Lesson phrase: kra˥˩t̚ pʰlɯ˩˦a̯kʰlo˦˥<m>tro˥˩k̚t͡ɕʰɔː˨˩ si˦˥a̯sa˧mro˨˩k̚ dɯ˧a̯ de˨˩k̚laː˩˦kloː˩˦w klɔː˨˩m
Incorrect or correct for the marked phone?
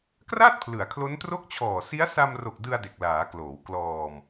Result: incorrect: n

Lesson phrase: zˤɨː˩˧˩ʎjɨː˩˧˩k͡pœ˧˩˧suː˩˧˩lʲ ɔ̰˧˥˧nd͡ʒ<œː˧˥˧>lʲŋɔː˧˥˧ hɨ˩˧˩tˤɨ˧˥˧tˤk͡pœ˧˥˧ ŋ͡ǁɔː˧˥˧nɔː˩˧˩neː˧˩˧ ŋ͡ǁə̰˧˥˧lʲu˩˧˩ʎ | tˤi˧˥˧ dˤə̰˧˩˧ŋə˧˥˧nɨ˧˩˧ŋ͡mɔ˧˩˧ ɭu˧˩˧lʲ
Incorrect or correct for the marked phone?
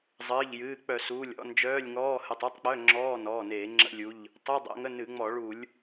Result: correct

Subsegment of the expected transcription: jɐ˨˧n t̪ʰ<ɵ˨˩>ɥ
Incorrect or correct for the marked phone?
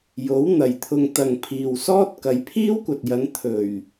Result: correct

